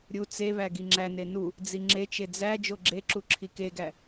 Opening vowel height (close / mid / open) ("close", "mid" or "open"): close